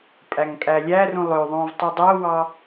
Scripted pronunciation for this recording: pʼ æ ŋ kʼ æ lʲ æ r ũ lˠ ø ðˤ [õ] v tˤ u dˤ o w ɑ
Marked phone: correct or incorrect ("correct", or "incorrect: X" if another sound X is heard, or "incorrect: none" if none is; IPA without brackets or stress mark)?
correct